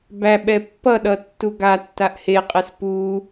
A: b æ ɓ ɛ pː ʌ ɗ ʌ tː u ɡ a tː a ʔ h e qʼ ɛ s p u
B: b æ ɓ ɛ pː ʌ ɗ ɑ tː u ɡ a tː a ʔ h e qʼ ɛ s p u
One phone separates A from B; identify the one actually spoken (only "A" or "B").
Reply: A